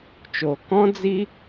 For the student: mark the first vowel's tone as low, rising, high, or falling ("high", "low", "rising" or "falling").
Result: low